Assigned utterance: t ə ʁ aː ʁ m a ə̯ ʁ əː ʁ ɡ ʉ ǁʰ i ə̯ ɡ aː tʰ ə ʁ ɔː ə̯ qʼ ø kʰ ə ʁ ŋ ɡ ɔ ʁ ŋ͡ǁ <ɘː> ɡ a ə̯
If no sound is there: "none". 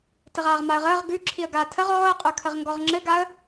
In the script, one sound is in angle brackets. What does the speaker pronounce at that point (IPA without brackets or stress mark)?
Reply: ɘ